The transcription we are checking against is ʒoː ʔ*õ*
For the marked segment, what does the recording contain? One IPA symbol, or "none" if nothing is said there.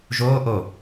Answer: o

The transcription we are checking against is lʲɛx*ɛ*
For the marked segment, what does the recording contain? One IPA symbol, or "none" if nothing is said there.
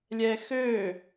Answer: ø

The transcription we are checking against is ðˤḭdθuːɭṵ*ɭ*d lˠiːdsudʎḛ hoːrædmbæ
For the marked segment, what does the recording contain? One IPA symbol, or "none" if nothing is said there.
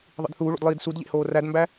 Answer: none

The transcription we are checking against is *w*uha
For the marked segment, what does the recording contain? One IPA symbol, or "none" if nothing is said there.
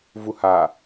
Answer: v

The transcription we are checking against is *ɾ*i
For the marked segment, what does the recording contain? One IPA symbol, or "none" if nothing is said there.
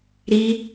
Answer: ɾ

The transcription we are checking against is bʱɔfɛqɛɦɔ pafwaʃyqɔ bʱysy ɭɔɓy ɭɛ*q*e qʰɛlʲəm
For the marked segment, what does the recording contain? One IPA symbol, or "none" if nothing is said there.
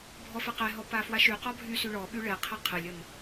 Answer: qʰ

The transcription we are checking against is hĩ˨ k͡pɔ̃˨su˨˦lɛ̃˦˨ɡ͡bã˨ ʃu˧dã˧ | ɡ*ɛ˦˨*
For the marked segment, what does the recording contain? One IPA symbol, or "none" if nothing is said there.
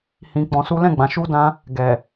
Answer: ɛ˨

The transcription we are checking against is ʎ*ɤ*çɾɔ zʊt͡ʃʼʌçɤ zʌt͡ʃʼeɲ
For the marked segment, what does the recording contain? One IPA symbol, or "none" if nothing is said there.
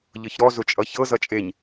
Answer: ɤ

